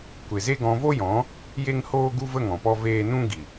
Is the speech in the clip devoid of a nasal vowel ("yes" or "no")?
no